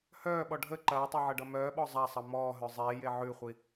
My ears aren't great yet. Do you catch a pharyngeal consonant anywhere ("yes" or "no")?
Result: yes